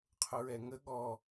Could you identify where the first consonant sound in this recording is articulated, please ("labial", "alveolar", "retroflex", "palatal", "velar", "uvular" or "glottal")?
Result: uvular